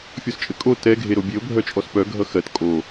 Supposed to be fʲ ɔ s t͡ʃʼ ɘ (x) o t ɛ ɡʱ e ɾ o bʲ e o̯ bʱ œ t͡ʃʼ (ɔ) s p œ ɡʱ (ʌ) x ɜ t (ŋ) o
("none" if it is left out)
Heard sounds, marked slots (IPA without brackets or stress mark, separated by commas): kʼ, ɔ, ʌ, kʼ